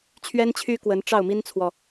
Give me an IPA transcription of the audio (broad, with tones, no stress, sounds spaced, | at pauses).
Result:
t͡ɕʰ ɥ ɛ˥ n t͡ɕʰ y˥ k w ə˧˥ n ʈ͡ʂ ɑ˥˩ ʊ̯ m i˥ n t͡sʰ w ɔ˨